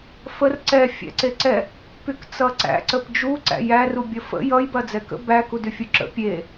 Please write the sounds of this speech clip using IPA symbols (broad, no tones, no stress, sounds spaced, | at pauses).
f ə r ǀ ɛ fʲ æ̰ ǀ e ǀ ɛ | p y k t͡s ʌ ǀ æ̰ ǀ ə p d͡ʒ u ǀ æ̰ j æ r u bʲ ʌ f ə̰ j ʌ j b ɐ d͡z ɛ k ə̰ b æ k u d y fʲ u ǁ ə̰ pʲ e